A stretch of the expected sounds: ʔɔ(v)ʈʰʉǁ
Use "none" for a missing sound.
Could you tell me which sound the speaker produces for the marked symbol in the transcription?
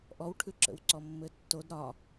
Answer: w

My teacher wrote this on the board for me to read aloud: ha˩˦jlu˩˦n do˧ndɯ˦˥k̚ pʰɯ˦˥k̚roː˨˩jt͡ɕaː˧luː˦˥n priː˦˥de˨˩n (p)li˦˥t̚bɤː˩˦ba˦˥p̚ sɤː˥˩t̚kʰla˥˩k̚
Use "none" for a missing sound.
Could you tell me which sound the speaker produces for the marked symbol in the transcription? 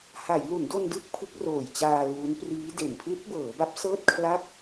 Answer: pʰ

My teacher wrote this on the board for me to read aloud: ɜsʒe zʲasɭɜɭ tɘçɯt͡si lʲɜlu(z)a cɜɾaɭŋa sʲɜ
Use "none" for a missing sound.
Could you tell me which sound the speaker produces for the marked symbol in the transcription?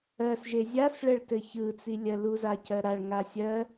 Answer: z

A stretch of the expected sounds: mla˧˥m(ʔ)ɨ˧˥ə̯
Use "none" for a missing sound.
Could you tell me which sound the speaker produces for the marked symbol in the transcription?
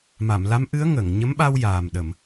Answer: ʔ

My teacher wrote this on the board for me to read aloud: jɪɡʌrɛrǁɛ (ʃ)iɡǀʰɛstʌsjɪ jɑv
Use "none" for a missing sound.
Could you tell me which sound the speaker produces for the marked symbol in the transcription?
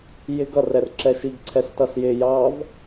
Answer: ʃ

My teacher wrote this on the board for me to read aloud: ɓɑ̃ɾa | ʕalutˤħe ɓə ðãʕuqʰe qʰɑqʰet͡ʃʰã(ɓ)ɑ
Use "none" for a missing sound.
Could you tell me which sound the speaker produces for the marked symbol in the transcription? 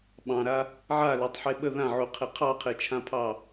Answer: pʰ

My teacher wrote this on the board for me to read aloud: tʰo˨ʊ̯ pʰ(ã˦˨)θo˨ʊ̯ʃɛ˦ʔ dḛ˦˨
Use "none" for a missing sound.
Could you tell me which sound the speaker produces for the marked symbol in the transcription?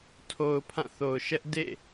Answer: ã˦˨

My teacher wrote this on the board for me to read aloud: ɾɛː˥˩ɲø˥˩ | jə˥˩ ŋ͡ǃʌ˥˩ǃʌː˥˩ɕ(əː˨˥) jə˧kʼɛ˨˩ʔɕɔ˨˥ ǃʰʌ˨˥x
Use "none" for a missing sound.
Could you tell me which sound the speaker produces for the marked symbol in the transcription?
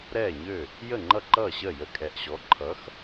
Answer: əː˥˩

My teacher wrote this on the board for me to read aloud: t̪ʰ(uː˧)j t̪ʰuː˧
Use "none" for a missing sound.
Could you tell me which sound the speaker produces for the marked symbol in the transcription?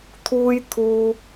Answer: uː˧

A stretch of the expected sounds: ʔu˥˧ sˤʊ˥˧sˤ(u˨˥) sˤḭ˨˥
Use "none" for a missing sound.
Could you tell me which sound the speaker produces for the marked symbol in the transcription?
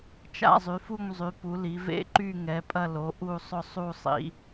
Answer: u˥˧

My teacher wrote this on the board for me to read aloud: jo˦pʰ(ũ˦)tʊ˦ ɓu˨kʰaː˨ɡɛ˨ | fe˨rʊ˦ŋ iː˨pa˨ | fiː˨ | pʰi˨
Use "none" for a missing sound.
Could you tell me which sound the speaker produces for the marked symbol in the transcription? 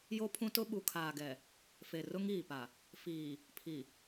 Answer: ũ˦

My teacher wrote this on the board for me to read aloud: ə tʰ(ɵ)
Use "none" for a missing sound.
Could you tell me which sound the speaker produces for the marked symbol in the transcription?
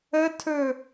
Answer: ɵ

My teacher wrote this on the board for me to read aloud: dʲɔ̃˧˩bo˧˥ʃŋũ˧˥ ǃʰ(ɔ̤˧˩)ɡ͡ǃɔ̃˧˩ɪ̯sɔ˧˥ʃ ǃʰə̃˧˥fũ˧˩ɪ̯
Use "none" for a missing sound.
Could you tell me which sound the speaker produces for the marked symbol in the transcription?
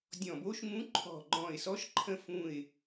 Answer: ɔ̤˧˩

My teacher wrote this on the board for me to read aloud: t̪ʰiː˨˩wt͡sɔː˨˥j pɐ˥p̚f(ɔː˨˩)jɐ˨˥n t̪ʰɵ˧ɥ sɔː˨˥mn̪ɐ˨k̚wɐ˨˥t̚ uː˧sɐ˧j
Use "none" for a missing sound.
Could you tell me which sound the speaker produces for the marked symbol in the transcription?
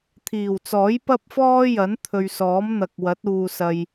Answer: ɔː˥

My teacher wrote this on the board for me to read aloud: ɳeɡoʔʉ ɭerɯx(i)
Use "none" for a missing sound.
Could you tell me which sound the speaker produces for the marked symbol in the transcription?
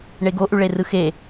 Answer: e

